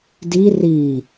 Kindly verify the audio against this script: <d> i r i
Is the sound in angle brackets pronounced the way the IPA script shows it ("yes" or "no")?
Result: yes